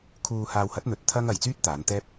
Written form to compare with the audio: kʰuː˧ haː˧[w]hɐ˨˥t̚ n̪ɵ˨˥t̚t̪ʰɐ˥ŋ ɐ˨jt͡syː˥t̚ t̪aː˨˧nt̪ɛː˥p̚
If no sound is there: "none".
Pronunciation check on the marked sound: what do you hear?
w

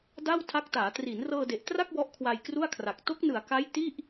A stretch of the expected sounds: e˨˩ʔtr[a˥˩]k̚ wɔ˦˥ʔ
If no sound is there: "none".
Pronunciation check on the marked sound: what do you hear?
a˥˩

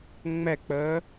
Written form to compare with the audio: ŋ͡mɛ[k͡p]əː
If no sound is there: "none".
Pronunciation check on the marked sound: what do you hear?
k͡p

